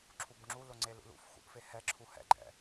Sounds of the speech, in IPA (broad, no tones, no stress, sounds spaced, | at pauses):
ǁʰ u b ŋ͡ǁ u l ʊ ŋ͡ǀ e l ṵ l ṵ f x ṵ ʔ f e h ɛ ǁʰ u h ɛ̰ ɡ͡ǃ ɛ̰